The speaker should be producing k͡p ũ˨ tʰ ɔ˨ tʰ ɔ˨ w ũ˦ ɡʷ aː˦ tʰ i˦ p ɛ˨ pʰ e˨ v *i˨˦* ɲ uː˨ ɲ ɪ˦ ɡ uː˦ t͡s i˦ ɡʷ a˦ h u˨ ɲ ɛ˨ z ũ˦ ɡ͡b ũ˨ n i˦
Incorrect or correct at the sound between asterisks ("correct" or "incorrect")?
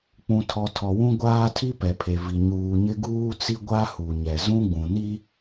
incorrect